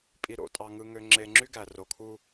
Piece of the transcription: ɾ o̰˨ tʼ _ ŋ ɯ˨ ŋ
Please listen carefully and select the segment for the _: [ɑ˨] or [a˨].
ɑ˨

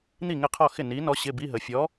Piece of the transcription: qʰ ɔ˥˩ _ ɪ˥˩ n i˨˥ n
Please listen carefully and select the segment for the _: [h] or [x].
x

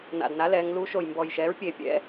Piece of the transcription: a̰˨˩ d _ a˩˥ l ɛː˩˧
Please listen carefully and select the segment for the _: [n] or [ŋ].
n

